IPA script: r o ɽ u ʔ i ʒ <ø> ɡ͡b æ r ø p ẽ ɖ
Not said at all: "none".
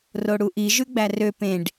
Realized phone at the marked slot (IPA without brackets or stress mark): ʉ